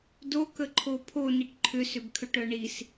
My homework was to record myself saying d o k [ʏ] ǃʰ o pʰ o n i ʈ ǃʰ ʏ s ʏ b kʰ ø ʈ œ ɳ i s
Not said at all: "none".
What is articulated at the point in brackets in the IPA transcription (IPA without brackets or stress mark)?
ə